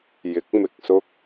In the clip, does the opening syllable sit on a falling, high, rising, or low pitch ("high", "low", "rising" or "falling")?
rising